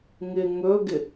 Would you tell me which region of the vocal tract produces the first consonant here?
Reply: velum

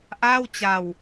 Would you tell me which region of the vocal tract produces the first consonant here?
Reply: throat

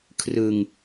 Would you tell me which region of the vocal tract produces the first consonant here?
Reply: velum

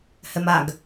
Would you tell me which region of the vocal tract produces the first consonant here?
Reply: throat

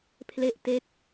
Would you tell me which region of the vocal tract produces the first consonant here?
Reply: lips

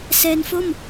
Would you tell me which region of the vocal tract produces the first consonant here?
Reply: tongue tip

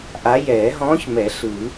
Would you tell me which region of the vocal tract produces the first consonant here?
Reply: throat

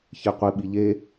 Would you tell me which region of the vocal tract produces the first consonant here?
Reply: palate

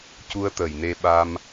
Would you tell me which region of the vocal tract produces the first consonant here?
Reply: palate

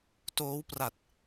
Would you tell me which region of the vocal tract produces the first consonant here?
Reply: tongue tip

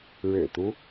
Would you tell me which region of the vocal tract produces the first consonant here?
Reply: retroflex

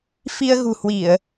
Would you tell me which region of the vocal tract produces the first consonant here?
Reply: lips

